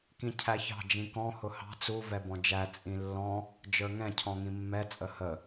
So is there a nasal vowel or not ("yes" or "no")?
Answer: yes